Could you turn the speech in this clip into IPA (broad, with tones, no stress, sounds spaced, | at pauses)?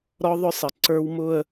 ɾ ɔ˦ ðˤ ʊ˦ sˤ ə˨ ǀ ə˞˦ w m ʊ˦ ə̯